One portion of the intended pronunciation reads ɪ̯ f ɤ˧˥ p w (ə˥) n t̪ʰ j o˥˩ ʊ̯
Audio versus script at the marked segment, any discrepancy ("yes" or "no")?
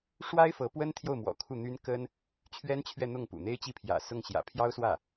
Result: no